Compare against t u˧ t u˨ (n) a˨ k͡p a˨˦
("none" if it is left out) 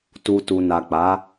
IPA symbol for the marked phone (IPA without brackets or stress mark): n